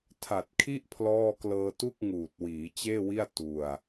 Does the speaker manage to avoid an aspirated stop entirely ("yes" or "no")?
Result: no